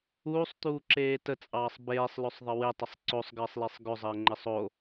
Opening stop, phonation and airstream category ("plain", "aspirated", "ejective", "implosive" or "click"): plain